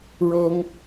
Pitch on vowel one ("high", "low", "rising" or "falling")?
high